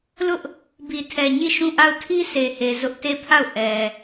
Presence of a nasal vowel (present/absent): present